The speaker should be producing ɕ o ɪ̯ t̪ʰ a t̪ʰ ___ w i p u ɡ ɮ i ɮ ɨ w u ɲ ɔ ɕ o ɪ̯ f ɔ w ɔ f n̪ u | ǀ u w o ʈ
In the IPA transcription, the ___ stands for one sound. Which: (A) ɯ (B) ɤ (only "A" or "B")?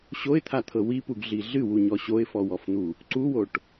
B